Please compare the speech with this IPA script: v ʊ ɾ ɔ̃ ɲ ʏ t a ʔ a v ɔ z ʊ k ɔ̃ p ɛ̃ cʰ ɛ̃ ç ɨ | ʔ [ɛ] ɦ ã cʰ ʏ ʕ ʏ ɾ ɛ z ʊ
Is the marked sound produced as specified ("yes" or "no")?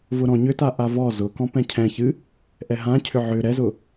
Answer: yes